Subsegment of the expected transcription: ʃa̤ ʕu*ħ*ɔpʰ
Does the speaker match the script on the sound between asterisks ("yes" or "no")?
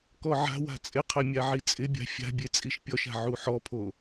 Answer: yes